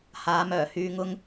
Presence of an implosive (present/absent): absent